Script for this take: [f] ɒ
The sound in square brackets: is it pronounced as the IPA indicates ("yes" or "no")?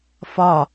yes